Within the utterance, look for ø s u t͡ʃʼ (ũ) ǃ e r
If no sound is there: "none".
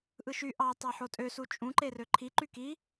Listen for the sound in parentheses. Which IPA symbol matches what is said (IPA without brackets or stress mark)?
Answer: ũ